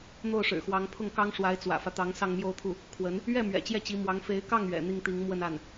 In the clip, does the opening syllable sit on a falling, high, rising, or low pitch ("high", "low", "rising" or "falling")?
falling